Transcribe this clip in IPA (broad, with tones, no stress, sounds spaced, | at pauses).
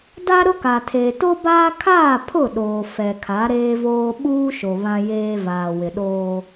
d a˦ ɾ ʊ˦ k a˨ tʰ eː˨ t o˦ b aː˦ kʰ aː˦˨ pʰ ʊ˦˨ ɗ oː˨ f ɛ˨ kʰ a˨˦ ɾ eː˦ v oː˦ ɓ uː˦ ʃ o˨ β ã˦ j eː˦ v aː˨ w ɪ˨ ɗ oː˦